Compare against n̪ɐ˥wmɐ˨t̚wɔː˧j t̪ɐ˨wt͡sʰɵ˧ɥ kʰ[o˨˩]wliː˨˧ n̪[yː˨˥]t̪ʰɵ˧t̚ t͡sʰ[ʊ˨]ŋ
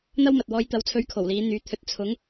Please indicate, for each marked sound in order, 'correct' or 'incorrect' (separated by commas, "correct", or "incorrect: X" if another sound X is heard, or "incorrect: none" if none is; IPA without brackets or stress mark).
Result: correct, correct, incorrect: ʊ˨˥